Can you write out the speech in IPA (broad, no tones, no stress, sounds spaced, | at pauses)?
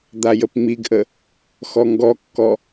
d̪ a j ə p ŋ͡m i ɡ ʔ ə | x ɔ ŋ ɡ ɔ kː ɔ